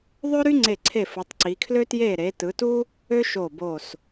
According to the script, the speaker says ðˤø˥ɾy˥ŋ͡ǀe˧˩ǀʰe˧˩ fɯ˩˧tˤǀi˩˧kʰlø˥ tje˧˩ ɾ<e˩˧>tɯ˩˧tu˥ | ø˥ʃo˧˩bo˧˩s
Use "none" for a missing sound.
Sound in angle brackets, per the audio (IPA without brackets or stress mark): e˩˧